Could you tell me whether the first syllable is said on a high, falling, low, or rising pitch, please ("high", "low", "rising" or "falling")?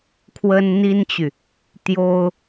high